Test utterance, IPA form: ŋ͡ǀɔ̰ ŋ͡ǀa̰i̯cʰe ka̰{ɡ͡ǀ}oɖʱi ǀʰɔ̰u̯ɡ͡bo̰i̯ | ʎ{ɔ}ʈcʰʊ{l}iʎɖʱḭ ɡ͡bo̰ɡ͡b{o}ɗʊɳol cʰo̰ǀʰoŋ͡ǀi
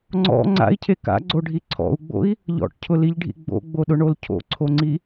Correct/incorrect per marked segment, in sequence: correct, incorrect, correct, correct

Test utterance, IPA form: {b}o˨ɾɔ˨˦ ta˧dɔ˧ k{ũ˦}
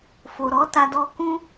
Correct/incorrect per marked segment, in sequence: incorrect, correct

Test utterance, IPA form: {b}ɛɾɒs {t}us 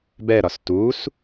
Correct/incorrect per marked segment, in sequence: correct, correct

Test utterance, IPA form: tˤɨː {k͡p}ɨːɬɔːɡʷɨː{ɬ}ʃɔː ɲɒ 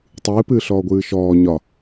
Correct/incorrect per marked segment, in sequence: incorrect, incorrect

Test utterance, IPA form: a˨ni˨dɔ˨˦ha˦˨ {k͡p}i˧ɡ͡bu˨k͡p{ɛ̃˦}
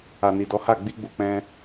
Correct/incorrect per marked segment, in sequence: incorrect, incorrect

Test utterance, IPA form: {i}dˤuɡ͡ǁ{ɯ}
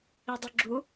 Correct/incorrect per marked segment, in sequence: correct, incorrect

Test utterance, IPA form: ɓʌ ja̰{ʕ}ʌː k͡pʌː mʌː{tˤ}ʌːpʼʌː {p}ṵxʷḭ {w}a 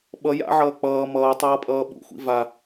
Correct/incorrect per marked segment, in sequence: correct, correct, incorrect, incorrect

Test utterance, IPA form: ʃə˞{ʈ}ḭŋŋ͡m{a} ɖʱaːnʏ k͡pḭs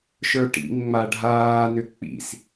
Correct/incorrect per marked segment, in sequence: correct, correct

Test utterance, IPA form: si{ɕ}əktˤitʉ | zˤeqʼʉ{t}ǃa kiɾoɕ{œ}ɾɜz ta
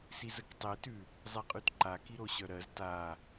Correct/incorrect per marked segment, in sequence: incorrect, correct, correct

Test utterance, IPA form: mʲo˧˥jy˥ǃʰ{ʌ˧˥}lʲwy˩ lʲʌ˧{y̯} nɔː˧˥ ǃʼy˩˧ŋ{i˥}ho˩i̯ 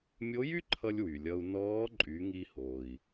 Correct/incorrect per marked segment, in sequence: incorrect, incorrect, incorrect

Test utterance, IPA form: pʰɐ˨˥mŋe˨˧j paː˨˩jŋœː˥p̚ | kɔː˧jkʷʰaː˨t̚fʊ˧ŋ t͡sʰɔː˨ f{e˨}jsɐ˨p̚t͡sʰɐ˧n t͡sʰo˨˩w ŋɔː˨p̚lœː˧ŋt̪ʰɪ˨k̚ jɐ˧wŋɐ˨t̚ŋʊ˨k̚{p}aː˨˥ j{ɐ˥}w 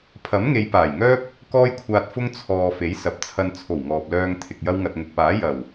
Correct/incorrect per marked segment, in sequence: incorrect, correct, incorrect

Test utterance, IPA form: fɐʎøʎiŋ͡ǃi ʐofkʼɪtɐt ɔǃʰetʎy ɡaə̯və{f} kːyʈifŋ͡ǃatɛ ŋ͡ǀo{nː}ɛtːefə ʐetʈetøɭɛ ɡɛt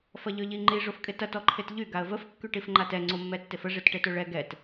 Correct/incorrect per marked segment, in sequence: correct, incorrect

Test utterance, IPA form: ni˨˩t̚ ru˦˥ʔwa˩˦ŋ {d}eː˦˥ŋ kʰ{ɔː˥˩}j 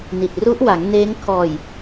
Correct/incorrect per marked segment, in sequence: incorrect, incorrect

